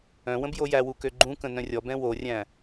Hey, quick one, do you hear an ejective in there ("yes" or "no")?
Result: no